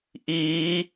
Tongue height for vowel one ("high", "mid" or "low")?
high